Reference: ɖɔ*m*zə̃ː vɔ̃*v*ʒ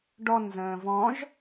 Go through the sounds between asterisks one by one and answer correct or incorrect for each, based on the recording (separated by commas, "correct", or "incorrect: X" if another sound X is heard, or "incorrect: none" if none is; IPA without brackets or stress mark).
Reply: incorrect: n, incorrect: none